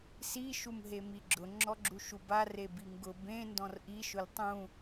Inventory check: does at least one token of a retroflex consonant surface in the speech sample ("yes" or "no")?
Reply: no